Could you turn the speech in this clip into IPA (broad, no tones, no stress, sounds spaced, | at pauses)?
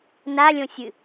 n a lʲ õ sʲ ɨ